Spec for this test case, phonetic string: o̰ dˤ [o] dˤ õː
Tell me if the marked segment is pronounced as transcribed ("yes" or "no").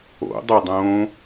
yes